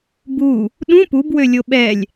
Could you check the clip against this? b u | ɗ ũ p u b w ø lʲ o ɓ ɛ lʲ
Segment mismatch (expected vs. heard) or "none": none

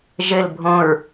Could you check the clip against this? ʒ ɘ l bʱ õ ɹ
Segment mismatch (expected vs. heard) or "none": none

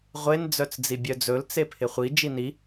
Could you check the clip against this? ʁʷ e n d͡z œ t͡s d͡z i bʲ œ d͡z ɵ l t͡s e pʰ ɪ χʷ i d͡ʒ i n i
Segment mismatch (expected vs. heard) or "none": none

